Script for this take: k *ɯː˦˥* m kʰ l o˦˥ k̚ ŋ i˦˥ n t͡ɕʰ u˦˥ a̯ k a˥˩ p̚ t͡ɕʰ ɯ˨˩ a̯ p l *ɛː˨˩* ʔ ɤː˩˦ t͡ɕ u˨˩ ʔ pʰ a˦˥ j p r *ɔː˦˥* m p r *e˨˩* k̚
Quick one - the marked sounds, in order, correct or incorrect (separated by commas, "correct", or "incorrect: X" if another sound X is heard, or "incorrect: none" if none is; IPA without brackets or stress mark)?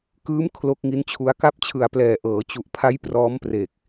correct, correct, correct, correct